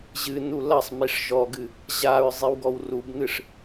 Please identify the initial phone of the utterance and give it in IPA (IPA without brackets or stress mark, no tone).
ʑ